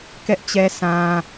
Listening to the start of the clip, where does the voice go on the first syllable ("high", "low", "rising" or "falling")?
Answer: high